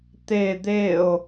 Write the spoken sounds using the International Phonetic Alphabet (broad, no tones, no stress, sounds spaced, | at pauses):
t̪ e d̪ e o̯